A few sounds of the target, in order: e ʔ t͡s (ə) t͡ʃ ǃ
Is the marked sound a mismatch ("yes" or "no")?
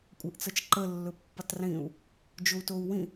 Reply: yes